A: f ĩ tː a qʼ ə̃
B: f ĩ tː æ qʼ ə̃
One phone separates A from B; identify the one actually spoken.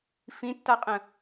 A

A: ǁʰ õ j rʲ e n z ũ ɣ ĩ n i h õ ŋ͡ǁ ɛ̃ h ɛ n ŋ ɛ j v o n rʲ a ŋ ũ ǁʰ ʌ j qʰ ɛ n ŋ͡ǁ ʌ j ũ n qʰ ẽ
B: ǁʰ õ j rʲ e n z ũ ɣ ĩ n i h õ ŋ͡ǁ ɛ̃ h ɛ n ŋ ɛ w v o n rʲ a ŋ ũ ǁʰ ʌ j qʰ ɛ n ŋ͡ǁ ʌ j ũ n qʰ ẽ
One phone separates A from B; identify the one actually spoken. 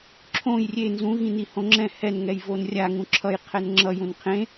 A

